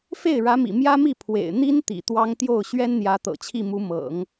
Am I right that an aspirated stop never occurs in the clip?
no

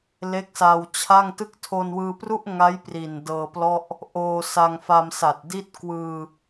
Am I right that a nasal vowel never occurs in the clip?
yes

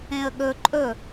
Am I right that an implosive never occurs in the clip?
no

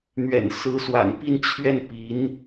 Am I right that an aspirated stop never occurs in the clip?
no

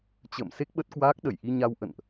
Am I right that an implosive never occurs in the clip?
no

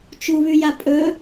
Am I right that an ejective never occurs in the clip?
no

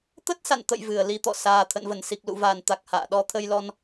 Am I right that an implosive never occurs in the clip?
no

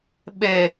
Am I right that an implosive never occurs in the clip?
no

